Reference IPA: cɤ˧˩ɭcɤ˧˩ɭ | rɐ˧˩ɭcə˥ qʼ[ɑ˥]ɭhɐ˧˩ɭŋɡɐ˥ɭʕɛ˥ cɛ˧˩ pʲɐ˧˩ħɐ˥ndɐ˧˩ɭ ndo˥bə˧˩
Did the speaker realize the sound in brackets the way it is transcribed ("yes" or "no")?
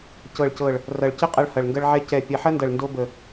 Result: no